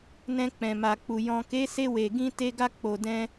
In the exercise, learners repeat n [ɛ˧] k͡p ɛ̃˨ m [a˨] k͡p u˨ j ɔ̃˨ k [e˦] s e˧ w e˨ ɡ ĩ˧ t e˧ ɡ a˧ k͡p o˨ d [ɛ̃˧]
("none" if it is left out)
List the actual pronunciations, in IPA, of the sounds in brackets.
ɛ̃˧, a˨, e˨˦, ɛ̃˧

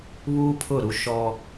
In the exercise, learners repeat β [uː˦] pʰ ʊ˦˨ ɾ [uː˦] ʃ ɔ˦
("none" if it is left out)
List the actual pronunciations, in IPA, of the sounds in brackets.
uː˦, u˦

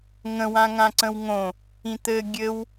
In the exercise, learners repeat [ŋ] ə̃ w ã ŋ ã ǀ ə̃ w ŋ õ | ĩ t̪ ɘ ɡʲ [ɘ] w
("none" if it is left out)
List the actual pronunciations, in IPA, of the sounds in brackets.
ŋ, ɘ

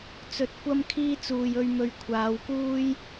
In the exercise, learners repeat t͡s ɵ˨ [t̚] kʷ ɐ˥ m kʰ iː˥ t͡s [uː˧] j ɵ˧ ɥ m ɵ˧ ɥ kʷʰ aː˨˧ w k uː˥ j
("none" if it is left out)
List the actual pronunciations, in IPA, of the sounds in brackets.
t̚, uː˨

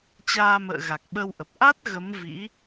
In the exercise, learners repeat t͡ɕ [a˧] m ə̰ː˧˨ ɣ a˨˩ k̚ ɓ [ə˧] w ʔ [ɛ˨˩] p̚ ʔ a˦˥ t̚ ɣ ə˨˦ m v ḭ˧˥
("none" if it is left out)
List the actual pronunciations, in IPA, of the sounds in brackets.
aː˧, ə˧, ə˨˩

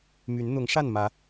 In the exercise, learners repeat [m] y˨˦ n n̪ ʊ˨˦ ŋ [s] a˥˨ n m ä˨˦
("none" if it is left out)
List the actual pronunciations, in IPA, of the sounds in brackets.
m, ʂ

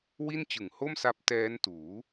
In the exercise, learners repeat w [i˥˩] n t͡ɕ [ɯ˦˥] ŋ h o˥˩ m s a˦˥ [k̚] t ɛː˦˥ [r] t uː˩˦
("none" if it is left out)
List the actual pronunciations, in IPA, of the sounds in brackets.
i˥˩, ɯ˨˩, p̚, n

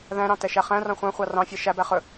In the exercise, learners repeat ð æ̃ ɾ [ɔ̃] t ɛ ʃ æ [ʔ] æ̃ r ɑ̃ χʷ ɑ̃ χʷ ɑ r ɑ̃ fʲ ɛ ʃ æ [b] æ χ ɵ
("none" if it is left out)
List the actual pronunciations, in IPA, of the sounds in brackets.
ɑ̃, χ, b

